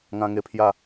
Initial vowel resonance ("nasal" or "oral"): nasal